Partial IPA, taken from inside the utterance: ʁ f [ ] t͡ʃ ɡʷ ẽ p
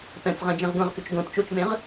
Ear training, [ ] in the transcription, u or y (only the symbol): y